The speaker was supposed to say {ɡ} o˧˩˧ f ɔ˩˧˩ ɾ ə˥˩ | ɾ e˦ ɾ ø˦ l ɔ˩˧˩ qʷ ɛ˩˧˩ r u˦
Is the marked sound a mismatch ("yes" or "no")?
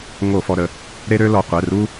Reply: yes